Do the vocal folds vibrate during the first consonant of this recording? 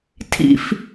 no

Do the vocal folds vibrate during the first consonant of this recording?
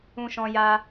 no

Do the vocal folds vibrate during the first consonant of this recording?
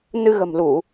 yes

